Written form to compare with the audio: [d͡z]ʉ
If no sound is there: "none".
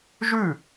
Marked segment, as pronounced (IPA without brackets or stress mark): ʒ